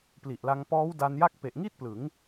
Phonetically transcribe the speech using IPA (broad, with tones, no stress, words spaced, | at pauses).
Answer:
pli˨˩ʔla˧ŋ pɔː˦˥wda˧n ja˥˩k̚ pe˨˩ʔŋi˥˩t̚ plɯ˩˦ŋ